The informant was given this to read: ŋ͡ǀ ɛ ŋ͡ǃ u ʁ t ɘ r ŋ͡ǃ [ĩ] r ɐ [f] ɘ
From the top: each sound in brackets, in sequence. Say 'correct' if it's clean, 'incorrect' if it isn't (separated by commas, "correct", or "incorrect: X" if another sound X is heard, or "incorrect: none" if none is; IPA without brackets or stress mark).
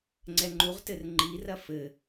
incorrect: i, correct